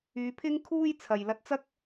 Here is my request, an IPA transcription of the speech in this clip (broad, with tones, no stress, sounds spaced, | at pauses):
yː˨˧ pʰ ɪ˥ ŋ kʰ uː˥ j t͡sʰ ɐ˨ j l ɐ˧ t̚ t͡s ɐ˥ k̚